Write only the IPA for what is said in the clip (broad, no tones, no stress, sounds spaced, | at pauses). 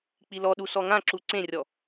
k͡p i l ɔ ɗ u s ɔ ŋ ã ǁ u ǀ ẽ rʲ ɔ